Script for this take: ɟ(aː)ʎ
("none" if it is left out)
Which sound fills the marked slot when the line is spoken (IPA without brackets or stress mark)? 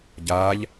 aː